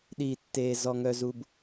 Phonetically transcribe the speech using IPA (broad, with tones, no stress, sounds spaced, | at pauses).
ɗ iː˨ tː eː˨ z ɔ˨ ŋ œ˨ z u˨ b